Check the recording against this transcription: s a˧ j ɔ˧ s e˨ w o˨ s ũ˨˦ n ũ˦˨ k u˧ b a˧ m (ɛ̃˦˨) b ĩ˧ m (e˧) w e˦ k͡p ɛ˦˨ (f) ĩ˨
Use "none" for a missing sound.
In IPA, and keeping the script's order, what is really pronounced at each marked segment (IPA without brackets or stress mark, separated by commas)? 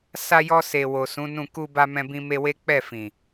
ɛ̃˧, e˧, f